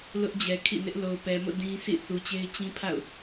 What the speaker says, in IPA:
l ʊ˦ ʔ d͡ʑ ɛ˨ kʰ ḭ˦˨ n ɪ˦ ʔ l o˨ ʊ̯ p ɛ˨ m o̰˦˨ d ĩ˦ s ḭ˦˨ θ u˨ t͡ɕ e˦ ɪ̯ t͡ɕ ĩ˦ pʰ a̰˦˨ ʊ̯

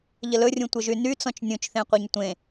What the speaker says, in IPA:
ʎ ə l ɵ rʲ ũ tʷ ə ʒ y n y t͡s ɔ̃ t͡ʃ nʲ ũ t͡ʃ θ ẽ qʷ e ɲ tʷ ẽ

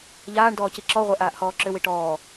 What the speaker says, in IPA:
ʎ aː ɳ d ɔː c i ǁ ɔ ʁʷ ɛ ʔ aː ʔ h ɔː ǁ ʏ w i ʈ ɔː

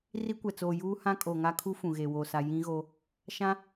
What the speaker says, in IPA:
r i˦ kʷ ɛ˨ t͡s oː˨ j uː˦ h ã˦ kʼ o˨ ŋ a˦ kʰ u˦ f ũ˨ ɣ e˨ w oː˨ s a˨ j ĩ˦ ɣ o˦ | ʃ ã˦

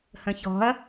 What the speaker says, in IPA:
h ə̃ ç ɔ̤ ɐ̯

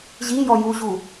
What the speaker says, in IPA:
ʑ i j ɔ j u ʑ u

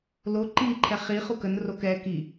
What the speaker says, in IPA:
l o ǃ i ǃʰ ɛ χ i χ u k ə n r o k ɛ k i

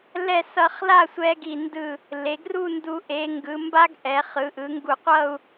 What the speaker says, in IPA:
l ɛ˥˧ s ʌ˧ χ l a˥˧ sʷ ɛ˧ ɡ i˧˩ n d ɯ˧˩ | l e˩˧ ɡ r u˥˧ n d u˧ ʔ e˩˧ ŋ ɡ ɯ˩˧ m b a˥ ɡ ʔ ɛ˩˧ χ ɯ˩˧ ʔ ɯ˩˧ ŋ ɡ u˧˩ qʷ ʌ˥˧ u̯

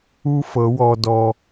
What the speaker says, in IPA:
u˥ f ɤ˧˥ w ɔ˧ d ɔ˧

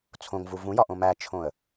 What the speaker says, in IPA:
t͡sʰ õ ŋ v u v ũ j ɒ ʔ õ m æ t͡ʃʰ õ ə̯

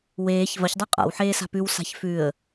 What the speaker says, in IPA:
w eː ç v ɐ ç dˤ a qʼ a̰ w ħ eː s a̤ p ʉ w s a̤ ç f ʉ ə̯

